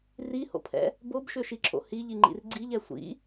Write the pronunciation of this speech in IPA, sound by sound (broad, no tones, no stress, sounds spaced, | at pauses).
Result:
r i h o̰ pʰ ɛ̰ | b o b ʃ ø ʃ i ǁʰ o̰ h i ʎ i ŋ͡ǃ ḭ r ɡ͡ǀ i ʎ ɛ sʷ ḭ